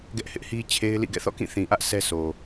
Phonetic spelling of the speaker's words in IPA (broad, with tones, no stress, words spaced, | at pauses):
ɡɛ˦ʔhɪ˦ʔhi˦ t͡ɕʰe˦ɪ̯lḭ˦˨ɡɛ̰˦˨ θɔ̰˦˨kĩ˦˨θĩ˨ʔä˦ʔ sʰɛ˦sʰo˨